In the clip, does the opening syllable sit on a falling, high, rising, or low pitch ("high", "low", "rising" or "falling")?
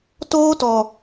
high